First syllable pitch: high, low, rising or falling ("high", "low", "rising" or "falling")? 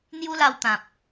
high